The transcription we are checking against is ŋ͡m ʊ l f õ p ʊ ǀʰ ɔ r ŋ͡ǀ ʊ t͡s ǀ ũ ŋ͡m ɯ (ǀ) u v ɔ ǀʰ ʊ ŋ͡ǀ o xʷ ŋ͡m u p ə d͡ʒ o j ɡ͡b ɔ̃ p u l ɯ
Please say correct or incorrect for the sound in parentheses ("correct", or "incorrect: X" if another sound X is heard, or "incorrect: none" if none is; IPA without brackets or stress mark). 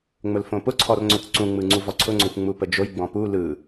incorrect: ŋ͡ǀ